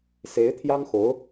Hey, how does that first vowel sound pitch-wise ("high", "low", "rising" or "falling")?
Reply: rising